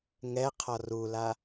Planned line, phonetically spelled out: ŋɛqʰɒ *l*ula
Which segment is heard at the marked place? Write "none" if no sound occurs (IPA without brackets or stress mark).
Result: r